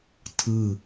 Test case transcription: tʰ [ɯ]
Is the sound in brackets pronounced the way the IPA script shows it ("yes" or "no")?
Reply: yes